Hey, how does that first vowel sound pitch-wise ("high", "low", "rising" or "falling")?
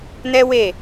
high